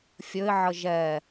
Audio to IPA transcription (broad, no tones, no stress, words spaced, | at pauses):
fʲɵɪ̯ʕə ʒɛ